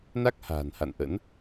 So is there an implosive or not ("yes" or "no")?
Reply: no